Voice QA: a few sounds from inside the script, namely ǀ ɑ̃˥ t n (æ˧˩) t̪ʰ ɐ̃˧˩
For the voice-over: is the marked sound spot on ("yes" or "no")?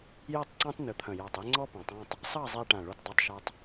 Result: no